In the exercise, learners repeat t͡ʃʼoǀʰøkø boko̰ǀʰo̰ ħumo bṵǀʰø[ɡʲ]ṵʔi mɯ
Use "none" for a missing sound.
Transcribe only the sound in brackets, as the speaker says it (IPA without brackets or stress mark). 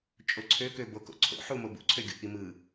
ɡʲ